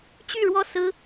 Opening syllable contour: falling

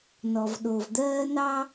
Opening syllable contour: low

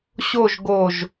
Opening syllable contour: falling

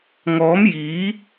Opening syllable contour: rising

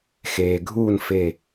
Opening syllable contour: low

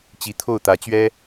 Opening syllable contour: rising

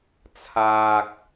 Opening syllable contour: high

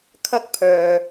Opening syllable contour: high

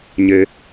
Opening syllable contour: low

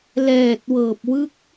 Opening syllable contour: low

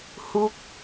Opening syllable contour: falling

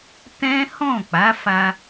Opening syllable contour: high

